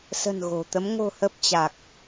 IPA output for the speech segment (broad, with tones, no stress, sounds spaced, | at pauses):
s ə̤˨˩ n ɣ o̤˨˩ t̪ ə˨˦ m ŋ o̤˨˩ h ə˨˩ p̚ t͡ɕ a˨˩ k̚